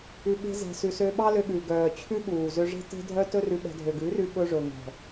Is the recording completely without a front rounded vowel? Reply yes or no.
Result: no